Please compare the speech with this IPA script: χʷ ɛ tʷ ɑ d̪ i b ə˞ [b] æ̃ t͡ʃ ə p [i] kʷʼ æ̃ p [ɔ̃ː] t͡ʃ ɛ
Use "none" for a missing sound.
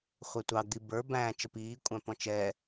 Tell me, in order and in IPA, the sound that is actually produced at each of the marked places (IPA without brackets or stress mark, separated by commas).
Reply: b, iː, ɔ̃